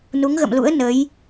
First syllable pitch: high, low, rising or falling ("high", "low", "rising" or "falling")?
rising